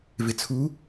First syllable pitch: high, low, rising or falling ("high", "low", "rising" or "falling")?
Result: low